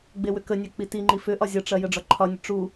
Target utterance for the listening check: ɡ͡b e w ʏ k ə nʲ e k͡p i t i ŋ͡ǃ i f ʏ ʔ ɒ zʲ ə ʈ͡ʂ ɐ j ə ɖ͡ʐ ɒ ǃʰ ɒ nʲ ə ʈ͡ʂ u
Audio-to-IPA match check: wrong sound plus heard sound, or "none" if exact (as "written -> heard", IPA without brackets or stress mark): none